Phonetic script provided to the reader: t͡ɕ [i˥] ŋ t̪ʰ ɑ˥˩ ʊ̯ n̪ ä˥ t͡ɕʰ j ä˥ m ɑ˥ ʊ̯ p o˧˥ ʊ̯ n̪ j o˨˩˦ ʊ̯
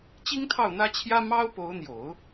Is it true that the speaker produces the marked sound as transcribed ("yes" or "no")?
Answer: yes